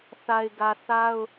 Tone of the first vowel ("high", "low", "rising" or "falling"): low